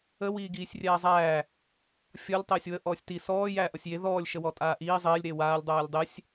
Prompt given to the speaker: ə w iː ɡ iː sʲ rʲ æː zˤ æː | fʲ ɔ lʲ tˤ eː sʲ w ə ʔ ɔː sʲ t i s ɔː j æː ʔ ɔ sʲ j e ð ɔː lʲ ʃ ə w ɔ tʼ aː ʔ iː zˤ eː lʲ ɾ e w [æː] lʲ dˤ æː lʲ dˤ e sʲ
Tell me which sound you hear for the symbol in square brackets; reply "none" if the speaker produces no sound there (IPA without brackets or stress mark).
aː